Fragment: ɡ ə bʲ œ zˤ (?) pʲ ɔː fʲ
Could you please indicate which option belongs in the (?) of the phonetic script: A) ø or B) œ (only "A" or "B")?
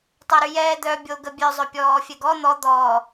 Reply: B